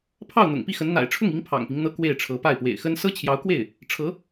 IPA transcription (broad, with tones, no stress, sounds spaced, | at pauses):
pʰ ɑ˥˩ ʊ̯ n̪ ʊ̰˨˩ ŋ p i˥˩ x ə˧˥ n n̪ a̰˨˩ ɪ̯ ʈ͡ʂʰ ʊ˥˩ ŋ i˧˥ ŋ pʰ ɑ̰˨˩ ŋ p i˦ ŋ n̪ ɤ˥ k w e˥˩ ɪ̯ ʈ͡ʂʰ ɤ˧˥ p a˥˩ ɪ̯ p w ḛ˨˩ ɪ̯ x ə˥ n s ɤ˥ t͡ɕʰ j ɑ˧˥ ʊ̯ k w e˥˩ ɪ̯ | ʈ͡ʂʰ ɤ˧˥